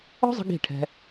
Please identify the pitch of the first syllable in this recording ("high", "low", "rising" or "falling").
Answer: high